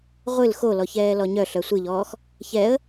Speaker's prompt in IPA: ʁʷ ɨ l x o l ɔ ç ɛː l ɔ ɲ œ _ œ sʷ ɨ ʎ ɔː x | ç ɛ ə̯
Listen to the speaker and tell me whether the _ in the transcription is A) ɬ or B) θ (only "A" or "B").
A